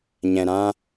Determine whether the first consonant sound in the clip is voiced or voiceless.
voiced